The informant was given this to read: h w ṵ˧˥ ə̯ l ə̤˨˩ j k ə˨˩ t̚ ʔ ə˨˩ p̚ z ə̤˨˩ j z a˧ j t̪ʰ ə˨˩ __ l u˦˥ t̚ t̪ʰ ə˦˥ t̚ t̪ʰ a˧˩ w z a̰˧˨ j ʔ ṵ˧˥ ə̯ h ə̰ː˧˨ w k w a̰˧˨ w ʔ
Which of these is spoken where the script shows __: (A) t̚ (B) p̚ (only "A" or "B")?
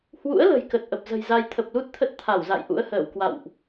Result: B